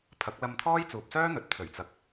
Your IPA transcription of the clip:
pʰɐ˨˥k̚lɐ˧mt̪ʰɔː˥j t͡suː˨p̚sœː˥n̪ɵ˨˥t̚ t̪ʰɵ˨˩ɥt͡sɐ˨k̚

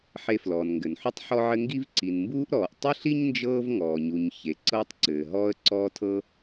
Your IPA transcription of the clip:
ħe˨ flɔː˩nŋɡɘ˩nħu˦tˤ ħɔ˦ʕɘ˦ŋɡi˥v ǀi˩nmbuː˦ʔɾɔː˩ʔ tˤɘ˥ɬi˥ɲnd͡ʒɤː˦v ŋɔː˩ɲu˩ɲ çe˩ ǀɤː˦tˤǀɘː˩ɦɔː˦ə̯ ǀɔː˦tʰɤ˦

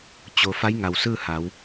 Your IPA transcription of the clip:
t͡ɕo˩ fa˧˥jŋa˩wsɯː˥˨ ha˩˧w

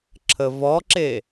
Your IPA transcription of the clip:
ǁʰəvɔǁe

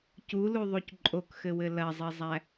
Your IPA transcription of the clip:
culuðˤuc ǃʼokxɘwɘ lɐzˤizˤæ

